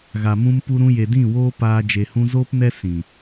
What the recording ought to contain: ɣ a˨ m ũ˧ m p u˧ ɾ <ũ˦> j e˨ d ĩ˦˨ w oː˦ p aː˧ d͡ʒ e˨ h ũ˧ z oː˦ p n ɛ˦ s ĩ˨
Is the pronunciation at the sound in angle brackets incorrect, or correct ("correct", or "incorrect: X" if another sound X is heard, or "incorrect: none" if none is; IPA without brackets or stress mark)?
incorrect: ũ˧